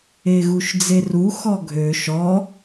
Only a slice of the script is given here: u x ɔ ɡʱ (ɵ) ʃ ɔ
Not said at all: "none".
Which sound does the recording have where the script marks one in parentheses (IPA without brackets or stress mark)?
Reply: ø